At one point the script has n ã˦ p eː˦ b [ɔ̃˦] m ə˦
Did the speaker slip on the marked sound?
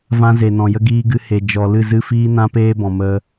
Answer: yes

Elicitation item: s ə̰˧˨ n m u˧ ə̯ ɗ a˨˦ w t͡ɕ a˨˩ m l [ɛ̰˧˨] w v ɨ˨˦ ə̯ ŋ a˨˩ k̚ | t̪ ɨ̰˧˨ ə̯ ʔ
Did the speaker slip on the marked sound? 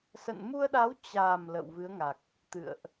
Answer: yes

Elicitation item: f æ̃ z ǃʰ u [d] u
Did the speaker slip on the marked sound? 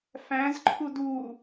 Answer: no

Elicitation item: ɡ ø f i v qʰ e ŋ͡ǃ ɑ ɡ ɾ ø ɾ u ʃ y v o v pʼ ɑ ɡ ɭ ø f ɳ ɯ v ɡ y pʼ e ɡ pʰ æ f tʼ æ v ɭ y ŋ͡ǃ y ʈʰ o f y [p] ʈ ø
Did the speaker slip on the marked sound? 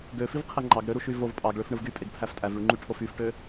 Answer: yes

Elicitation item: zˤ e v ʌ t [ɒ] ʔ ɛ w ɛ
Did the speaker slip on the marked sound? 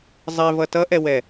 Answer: yes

